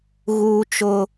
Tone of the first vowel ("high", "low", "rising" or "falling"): high